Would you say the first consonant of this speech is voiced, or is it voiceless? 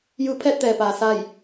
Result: voiced